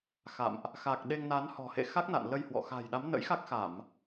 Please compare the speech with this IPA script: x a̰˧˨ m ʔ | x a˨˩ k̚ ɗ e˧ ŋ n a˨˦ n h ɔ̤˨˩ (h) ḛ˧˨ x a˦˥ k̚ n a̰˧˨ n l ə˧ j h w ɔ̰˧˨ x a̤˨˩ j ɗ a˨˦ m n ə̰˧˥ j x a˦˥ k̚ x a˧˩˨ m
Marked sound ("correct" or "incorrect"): correct